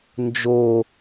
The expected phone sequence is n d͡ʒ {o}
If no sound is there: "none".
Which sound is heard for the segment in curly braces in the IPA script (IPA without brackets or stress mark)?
o